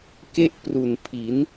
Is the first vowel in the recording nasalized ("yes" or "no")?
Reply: no